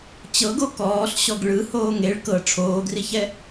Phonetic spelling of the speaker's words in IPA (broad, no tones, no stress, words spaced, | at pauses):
t͡ɕɤɡo kɔːɬɕɔɡ ɭɯhoːŋ eɭ kɤ ʈ͡ʂʰoːɡriçɛ